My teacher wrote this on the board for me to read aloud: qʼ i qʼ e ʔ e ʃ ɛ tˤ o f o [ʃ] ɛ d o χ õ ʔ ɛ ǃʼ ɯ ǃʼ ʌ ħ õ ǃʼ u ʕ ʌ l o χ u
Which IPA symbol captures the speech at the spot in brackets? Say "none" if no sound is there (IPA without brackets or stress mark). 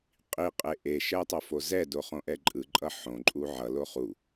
z